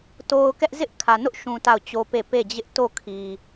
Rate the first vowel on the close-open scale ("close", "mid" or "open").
mid